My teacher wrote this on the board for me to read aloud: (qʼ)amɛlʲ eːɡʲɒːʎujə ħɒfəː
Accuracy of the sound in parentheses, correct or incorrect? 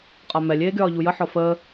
correct